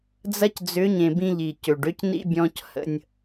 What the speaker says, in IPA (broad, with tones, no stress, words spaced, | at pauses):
d͡zɐ˦cd͡zʏ˨˦ɲẽ˨ bĩ˦ʎi˨ cø˨ɖø˦cnḭ˦ bʲɔ̃˦chə̰˦nʲ